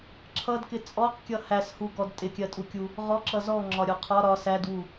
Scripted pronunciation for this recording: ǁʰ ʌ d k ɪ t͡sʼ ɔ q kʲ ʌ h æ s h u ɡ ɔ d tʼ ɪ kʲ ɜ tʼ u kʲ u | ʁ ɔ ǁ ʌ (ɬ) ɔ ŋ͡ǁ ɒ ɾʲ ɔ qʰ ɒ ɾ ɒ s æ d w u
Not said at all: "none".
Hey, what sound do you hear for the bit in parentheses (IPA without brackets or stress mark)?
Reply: z